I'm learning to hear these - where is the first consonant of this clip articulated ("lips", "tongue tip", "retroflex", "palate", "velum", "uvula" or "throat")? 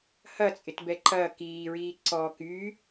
throat